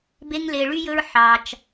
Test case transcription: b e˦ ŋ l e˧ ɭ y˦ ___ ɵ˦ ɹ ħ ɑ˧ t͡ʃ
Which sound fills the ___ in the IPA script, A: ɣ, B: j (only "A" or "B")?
B